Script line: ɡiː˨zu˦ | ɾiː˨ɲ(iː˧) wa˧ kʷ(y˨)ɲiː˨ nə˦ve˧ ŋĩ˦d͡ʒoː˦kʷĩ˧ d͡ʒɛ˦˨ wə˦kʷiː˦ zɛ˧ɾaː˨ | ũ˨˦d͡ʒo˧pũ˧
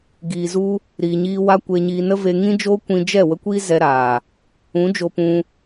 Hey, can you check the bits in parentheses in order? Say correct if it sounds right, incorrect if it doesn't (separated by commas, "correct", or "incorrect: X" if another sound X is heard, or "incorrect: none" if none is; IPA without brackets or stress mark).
correct, incorrect: e˨